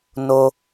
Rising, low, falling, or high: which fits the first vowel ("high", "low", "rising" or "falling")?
high